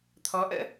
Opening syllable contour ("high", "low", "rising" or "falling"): rising